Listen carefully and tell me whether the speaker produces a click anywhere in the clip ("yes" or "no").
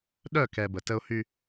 no